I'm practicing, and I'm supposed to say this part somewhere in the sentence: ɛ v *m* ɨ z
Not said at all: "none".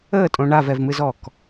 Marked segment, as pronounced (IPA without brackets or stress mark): m